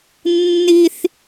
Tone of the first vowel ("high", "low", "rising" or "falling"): high